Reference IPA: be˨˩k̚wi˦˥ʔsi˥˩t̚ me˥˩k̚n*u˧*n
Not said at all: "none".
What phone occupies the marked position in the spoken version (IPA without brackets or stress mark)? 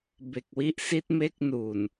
u˨˩